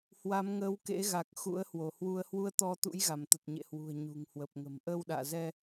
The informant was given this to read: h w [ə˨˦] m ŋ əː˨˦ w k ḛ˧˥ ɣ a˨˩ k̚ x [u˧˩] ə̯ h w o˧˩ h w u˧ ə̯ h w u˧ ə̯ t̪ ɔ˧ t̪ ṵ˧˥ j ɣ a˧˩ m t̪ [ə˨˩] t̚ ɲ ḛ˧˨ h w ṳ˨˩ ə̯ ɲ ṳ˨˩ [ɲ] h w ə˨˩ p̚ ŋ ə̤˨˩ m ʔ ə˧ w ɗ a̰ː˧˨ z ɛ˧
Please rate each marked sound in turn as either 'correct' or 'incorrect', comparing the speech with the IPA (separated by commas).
incorrect, incorrect, correct, incorrect